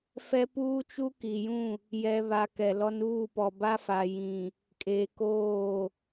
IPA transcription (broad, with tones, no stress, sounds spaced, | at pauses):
f ɛ˦ p uː˦ t͡ʃ u˦ k i˨ j ũ˦˨ | j ɛ˨ β a˨ k ɛ˨ l ɔ˦ n uː˦˨ p ɔ˨ b a˦ f a˨ j ĩ˨ | kʼ eː˨ k oː˦˨